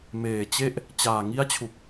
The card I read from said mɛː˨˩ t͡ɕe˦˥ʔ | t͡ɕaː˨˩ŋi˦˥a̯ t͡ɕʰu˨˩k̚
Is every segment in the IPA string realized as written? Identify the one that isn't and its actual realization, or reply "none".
ɛː˨˩ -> eː˨˩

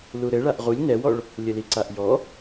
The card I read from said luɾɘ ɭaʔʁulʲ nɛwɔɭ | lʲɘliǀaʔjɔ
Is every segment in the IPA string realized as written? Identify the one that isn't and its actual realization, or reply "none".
none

